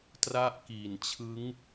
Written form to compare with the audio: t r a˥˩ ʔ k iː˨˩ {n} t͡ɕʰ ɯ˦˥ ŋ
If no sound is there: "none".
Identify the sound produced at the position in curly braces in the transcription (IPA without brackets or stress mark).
n